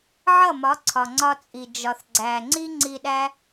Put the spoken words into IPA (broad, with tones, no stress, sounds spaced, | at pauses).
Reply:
ʕ ʌ˦˨ m ɒ˨˦ ǀʰ ɒ˨ ŋ͡ǀ ɒ˧ t͡sʼ i˨ d͡ʒ ɒ˨ θ ɡ͡ǀ æ˨ ŋ͡ǀ i˦ ŋ͡ǀ i˧ ɗ æ˦